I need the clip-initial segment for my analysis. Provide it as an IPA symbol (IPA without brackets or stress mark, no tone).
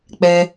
k͡p